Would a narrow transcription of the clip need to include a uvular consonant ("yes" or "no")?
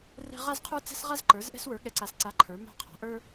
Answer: yes